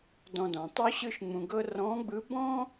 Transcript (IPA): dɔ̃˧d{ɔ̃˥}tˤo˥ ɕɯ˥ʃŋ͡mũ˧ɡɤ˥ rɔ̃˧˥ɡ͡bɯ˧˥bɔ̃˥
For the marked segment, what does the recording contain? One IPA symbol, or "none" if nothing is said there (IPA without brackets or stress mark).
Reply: ɔ̃˩˧